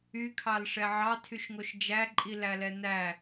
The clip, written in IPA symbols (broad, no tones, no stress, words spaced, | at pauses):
ykʰɑlʂɛ ʕɑtʰyʃŋoʃ d͡ʒæǃʼilæ lɛnæ